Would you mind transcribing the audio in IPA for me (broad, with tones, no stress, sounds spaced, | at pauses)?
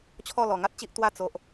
t͡ɕʰ ɔ˥˧ l ɔ˨˩ ŋ a˦ t̚ t͡ɕ i˦ ʔ t̪ w a˥˧ t͡s o˨ ʔ